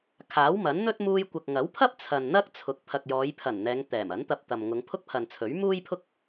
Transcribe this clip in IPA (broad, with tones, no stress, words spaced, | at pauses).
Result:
kʰaː˨˥wmɐ˨˥nn̪ɵ˥t̚ muː˧jkʷɐ˨k̚ŋɐ˨˥wpʰɐ˥p̚ t͡sʰɐ˨nn̪ɐ˥k̚ t͡sʰʊ˨˥k̚ pʰɐ˨k̚jɔː˨˧jpʰɐ˨˩n n̪ɛː˨˧ŋ t̪ɛː˨˩mɐ˨˥nt̪ɐ˧p̚t̪ɐ˨m ŋʊ˨˧ŋpʰʊ˥k̚pʰɐ˨nt͡sʰɵ˨˥ɥ muː˥jpʰʊ˥k̚